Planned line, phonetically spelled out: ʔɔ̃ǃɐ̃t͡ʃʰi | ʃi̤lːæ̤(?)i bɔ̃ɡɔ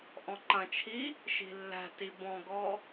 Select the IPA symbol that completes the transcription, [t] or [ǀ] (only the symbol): t